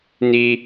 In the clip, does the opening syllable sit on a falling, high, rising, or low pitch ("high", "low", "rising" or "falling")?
high